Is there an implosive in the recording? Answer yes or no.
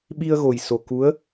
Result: yes